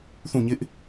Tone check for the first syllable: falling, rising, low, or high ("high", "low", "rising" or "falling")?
falling